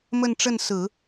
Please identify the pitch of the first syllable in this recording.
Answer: falling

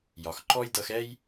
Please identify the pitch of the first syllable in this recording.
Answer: low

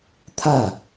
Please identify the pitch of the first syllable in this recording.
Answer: falling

